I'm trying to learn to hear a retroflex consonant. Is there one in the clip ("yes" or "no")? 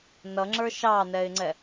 no